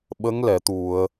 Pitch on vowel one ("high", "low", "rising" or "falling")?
rising